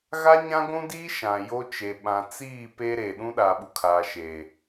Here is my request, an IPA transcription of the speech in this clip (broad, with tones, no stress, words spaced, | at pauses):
ɣa˦ɲã˦ɡʷũ˦diː˦ ʃã˨ jo˦ t͡ʃe˨ɓã˨ t͡siː˦˨ pe˦ɾe˨ ɗũ˦ɗa˨ɓu˨ kʰaː˨ʃe˨